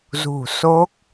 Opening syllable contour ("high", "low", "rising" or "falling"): low